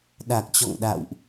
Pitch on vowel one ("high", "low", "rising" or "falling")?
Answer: low